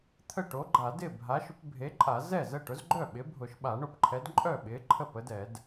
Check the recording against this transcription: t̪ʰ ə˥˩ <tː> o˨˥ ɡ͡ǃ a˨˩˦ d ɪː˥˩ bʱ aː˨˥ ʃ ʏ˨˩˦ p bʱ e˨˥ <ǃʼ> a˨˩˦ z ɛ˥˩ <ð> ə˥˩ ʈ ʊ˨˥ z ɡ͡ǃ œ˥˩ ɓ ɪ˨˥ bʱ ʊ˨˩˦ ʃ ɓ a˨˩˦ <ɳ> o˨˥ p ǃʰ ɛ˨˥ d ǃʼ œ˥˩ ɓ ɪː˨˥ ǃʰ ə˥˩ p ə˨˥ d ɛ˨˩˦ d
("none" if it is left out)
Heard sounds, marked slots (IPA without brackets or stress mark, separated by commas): ʈ, ǃʼ, z, ɳ